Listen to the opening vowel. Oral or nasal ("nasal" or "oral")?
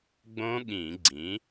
nasal